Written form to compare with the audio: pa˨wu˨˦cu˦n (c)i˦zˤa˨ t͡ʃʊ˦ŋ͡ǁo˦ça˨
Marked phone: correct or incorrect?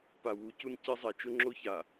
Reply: correct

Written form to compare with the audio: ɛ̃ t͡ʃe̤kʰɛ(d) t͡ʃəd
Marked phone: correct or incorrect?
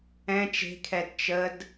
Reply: correct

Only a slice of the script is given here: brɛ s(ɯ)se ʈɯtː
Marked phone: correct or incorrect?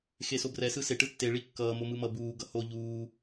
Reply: correct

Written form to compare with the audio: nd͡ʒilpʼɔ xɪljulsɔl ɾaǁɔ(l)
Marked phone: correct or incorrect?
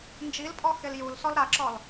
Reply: correct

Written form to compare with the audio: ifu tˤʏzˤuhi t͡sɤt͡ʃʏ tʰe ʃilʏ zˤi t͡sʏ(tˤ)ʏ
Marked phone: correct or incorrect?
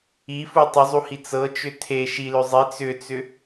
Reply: incorrect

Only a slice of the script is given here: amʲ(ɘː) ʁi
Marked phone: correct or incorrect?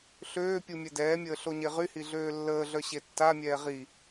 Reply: incorrect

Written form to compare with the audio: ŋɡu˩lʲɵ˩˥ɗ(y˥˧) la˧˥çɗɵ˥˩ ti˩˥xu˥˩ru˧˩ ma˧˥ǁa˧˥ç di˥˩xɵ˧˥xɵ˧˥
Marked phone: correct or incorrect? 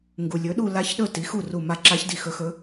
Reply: incorrect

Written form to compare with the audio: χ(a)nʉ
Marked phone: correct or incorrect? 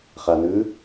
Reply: correct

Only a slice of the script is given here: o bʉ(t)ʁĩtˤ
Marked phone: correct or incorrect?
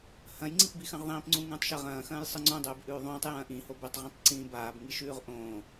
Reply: incorrect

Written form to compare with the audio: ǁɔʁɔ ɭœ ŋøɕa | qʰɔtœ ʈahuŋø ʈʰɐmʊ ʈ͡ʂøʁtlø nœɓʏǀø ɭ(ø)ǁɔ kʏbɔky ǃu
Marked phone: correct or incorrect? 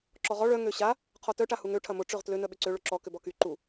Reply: correct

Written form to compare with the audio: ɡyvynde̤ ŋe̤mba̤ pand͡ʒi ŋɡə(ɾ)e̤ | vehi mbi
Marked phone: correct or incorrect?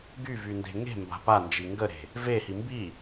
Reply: correct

